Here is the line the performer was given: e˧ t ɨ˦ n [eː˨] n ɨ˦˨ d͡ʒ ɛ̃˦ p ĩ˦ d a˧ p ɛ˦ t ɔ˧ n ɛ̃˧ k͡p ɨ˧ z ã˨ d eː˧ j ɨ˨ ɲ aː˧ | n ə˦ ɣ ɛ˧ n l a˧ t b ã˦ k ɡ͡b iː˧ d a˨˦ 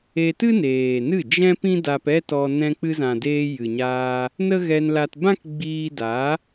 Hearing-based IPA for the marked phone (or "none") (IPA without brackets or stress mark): eː˨